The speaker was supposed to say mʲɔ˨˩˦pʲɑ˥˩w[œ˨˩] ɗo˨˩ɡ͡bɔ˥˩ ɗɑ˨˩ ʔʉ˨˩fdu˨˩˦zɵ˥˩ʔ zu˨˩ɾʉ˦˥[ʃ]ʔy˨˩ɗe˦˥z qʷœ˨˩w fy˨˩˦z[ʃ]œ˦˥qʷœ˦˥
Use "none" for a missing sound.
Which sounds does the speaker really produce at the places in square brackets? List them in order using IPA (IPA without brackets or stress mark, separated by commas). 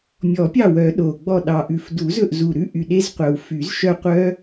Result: œ˨˩˦, none, ʃ